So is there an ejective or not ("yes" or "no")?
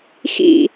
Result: no